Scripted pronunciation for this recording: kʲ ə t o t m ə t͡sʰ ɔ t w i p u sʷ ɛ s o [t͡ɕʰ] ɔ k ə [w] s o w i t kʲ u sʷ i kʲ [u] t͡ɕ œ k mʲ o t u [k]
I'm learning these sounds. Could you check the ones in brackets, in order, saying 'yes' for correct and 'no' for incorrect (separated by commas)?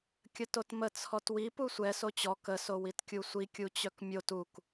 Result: no, no, yes, yes